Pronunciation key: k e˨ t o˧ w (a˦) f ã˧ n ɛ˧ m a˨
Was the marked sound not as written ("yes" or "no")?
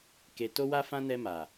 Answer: yes